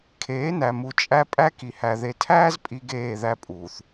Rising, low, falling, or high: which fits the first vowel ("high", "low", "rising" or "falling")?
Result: rising